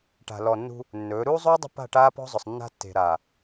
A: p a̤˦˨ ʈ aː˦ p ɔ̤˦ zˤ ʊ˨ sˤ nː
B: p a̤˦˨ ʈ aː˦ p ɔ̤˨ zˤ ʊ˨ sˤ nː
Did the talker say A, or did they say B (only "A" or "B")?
A